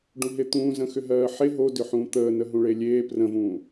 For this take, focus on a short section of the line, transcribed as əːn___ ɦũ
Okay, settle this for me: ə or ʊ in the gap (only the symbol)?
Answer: ə